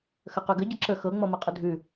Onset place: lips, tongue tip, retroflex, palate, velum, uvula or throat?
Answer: velum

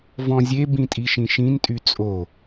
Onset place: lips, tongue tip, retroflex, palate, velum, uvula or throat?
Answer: lips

